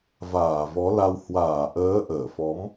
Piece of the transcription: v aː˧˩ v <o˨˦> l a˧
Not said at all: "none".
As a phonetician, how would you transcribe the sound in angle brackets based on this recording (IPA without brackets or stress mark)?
ɔ˨˦